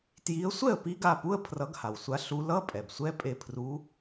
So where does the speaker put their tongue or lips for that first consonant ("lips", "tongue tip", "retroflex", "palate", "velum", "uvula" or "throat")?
tongue tip